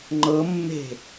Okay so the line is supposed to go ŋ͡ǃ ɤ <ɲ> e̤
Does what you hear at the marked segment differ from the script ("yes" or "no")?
yes